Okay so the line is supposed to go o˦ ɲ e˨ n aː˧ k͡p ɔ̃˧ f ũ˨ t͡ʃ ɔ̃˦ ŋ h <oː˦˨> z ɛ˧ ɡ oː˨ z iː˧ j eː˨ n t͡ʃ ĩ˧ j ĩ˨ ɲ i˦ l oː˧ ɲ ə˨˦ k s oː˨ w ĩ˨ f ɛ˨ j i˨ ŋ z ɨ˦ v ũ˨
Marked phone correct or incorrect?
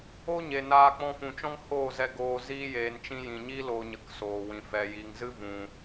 correct